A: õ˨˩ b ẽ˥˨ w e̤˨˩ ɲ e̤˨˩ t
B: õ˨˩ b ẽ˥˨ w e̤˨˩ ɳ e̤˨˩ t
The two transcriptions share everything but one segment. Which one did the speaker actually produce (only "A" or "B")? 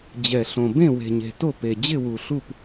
A